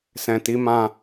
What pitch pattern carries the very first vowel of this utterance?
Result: low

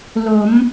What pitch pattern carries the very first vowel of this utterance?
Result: rising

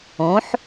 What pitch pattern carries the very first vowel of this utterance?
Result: rising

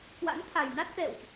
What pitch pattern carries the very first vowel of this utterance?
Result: rising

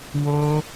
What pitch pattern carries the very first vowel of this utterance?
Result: high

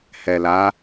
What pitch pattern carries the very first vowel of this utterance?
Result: low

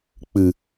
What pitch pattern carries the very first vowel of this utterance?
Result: low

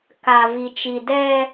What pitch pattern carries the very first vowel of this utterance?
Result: low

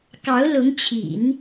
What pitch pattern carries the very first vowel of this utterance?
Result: rising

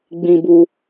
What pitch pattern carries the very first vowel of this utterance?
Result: high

